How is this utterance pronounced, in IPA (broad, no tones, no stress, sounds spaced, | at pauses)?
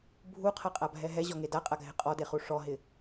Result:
bʱ u qʰ a qʼ a bʱ ɛ ɦ ɛ ʑ ɔ ŋ e d a qʼ a ɡʱ ɪ qʼ ɔ d e χ u ʂ ɔ ɦ ɪ